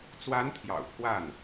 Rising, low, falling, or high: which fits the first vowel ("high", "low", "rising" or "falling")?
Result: rising